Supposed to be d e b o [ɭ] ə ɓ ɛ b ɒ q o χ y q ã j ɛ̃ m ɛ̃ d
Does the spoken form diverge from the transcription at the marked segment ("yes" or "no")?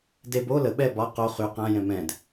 yes